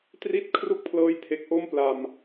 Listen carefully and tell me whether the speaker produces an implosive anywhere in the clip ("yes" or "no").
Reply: no